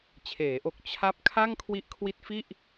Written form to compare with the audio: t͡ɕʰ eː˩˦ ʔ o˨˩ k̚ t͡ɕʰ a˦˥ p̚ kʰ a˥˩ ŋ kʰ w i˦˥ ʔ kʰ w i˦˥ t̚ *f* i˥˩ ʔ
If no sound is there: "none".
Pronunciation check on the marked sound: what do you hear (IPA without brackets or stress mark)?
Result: f